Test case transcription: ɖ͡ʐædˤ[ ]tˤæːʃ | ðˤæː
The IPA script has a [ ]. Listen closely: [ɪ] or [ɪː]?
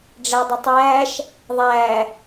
ɪ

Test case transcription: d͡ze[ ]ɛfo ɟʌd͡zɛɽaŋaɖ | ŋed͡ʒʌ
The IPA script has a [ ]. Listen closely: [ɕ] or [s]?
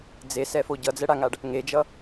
s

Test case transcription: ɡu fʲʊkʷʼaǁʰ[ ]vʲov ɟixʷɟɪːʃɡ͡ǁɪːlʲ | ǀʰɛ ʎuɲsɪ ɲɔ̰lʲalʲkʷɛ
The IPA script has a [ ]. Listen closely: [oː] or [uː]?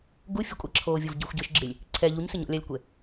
oː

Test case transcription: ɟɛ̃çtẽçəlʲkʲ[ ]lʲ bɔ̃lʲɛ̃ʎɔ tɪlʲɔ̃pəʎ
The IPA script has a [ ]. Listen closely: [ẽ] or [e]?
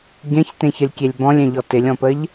e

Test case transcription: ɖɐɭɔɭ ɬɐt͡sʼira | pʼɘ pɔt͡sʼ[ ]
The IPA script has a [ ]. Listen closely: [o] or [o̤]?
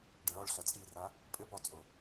o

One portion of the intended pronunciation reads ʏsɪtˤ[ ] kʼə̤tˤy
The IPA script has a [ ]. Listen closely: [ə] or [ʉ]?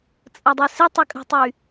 ə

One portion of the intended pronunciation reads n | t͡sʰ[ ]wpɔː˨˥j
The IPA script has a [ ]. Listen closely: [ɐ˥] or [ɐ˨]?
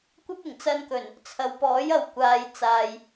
ɐ˨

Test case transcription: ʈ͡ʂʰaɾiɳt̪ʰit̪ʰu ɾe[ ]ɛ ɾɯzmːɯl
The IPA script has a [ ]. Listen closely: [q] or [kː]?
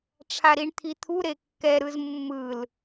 kː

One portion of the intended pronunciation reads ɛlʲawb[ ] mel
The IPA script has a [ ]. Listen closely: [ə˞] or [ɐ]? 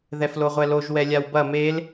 ɐ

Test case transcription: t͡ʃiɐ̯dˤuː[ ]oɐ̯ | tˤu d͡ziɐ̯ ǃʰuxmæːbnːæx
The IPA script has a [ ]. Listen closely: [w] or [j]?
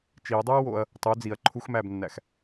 w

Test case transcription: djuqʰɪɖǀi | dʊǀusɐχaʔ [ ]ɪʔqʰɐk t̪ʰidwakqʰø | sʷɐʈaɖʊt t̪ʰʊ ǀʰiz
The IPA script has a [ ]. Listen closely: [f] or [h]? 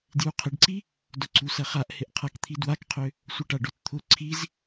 h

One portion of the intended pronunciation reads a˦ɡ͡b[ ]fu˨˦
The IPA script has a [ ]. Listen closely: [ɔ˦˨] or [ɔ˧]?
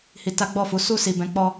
ɔ˦˨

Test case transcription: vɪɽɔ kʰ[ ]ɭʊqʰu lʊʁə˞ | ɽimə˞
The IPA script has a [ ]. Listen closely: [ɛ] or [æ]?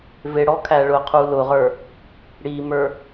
æ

